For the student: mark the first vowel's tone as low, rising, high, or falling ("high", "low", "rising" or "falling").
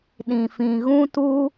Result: low